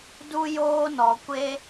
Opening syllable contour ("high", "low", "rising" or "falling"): high